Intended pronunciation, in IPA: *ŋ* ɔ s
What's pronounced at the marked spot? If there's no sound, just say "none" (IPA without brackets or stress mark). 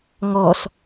ŋ